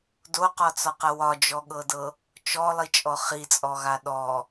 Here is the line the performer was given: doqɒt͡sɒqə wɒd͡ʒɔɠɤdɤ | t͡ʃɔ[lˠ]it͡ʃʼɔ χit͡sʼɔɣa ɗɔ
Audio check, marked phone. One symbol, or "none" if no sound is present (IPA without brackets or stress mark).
lˠ